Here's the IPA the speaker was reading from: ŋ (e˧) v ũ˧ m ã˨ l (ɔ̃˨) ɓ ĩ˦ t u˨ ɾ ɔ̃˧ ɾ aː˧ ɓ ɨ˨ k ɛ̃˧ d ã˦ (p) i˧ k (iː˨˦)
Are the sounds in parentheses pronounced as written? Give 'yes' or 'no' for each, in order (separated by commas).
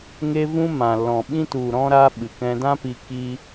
yes, yes, yes, no